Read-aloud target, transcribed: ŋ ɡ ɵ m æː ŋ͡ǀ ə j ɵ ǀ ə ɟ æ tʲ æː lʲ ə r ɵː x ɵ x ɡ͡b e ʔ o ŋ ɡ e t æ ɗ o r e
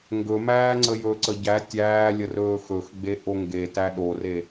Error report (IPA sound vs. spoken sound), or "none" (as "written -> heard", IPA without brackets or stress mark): none